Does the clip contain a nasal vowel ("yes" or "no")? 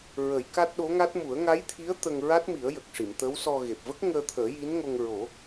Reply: no